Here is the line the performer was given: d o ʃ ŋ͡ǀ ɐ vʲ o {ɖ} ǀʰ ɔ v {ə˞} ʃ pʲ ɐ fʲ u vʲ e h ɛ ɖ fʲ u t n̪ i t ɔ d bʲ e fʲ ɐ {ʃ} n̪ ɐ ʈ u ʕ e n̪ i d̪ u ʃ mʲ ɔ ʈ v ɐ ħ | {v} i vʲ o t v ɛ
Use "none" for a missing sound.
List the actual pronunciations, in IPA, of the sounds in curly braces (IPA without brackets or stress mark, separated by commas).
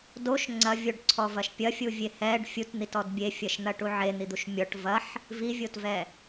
ɖ, ɐ, ʃ, v